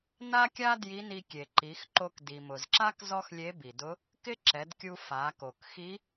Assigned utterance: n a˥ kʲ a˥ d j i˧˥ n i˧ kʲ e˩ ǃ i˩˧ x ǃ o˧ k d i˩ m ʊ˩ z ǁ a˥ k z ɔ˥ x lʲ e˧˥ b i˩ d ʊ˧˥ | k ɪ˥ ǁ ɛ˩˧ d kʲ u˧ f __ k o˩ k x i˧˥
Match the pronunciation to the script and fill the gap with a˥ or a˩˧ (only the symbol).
a˩˧